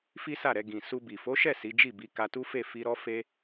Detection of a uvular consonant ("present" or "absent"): absent